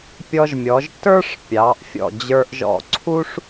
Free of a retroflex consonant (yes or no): no